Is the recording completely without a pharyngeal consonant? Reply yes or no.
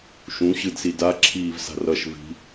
yes